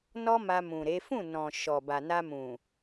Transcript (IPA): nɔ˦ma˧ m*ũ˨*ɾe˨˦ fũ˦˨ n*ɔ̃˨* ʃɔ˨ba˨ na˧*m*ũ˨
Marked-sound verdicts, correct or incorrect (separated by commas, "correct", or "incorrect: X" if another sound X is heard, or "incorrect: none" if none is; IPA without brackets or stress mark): correct, correct, correct